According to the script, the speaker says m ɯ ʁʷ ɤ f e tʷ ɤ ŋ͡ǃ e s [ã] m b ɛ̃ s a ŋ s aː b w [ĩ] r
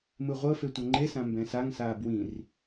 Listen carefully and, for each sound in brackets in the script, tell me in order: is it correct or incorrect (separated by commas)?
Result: correct, correct